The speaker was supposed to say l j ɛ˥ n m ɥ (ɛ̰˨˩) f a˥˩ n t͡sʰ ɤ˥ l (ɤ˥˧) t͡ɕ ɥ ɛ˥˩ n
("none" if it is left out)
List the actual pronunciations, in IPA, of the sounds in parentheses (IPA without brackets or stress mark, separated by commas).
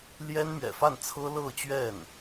ɛ̰˨˩, ɤ˥˧